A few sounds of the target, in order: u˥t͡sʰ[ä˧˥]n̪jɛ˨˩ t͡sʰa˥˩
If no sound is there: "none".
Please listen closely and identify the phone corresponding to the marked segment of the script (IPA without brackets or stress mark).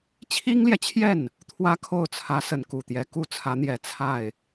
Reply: ä˧˥